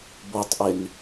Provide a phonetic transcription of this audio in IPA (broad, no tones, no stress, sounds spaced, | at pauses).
b o tˤ ʔ e n